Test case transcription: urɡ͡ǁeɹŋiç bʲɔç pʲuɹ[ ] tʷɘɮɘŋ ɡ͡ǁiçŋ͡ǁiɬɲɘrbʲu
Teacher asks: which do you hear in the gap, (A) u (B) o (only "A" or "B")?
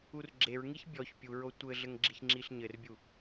B